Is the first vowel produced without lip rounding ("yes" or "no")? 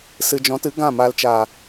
yes